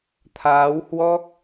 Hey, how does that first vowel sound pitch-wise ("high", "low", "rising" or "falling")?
rising